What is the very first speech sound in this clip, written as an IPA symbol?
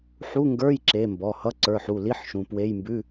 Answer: ħ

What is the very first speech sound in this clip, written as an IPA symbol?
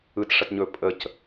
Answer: ɯ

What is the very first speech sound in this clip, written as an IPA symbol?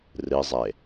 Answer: r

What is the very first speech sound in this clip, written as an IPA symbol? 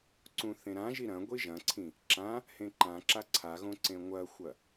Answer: ǀ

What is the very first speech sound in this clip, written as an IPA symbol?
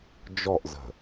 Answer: d͡ʒ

